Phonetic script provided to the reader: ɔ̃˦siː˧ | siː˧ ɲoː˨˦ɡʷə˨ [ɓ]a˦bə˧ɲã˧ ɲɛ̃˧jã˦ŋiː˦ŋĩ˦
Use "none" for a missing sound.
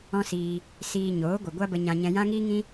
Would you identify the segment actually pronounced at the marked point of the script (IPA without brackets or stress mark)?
ɡʷ